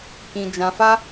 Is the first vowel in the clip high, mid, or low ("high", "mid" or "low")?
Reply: high